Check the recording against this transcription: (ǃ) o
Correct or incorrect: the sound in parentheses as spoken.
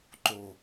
correct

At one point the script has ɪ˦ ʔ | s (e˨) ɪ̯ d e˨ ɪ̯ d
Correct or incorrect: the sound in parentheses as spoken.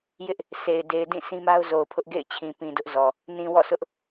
correct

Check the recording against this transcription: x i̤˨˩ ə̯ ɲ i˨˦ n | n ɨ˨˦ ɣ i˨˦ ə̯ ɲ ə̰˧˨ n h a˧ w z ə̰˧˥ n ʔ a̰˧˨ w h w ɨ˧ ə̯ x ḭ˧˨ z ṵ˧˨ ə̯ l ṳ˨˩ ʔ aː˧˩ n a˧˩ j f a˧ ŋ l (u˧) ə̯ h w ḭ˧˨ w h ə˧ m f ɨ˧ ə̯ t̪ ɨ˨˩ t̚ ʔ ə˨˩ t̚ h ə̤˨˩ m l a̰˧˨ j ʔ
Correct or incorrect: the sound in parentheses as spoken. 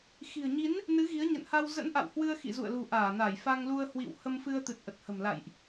correct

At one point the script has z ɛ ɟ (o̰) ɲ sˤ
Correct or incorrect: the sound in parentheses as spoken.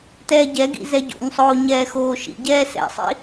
correct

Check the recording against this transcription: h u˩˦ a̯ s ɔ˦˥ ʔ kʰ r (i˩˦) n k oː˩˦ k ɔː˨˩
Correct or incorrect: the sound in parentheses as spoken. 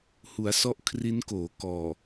incorrect: i˦˥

